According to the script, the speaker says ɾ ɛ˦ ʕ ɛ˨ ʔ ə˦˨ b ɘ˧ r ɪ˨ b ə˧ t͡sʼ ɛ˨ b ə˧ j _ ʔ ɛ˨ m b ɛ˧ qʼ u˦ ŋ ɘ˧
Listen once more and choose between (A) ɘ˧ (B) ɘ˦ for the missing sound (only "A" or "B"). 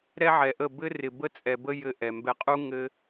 A